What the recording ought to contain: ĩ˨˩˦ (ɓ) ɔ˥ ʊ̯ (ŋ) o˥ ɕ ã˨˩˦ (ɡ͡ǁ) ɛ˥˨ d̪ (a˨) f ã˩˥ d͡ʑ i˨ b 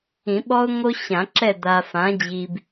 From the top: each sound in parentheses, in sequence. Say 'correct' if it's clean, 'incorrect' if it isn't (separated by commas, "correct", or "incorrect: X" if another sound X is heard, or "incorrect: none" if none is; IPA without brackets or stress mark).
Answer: correct, correct, incorrect: ǁ, correct